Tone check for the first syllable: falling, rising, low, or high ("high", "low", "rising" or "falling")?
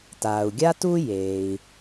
low